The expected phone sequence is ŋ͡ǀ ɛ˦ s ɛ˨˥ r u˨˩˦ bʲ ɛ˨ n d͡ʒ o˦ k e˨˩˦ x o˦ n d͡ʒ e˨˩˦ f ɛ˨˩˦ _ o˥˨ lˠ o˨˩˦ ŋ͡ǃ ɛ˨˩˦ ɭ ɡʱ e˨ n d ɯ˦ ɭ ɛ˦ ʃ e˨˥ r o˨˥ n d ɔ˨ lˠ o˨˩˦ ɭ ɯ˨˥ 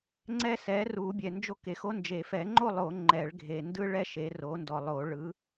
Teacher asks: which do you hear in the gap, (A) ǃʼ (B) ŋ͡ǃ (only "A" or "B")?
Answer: B